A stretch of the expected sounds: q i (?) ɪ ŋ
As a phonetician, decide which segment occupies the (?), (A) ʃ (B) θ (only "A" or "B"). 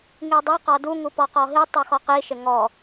A